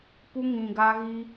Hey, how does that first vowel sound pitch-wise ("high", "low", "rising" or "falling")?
high